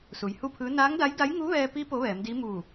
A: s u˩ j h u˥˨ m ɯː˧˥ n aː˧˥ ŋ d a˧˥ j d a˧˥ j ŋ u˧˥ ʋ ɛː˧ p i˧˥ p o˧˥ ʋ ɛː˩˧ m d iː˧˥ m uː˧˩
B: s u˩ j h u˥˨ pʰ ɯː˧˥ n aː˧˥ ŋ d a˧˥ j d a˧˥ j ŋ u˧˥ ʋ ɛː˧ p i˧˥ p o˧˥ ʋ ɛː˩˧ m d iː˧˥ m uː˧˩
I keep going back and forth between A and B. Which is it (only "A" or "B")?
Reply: B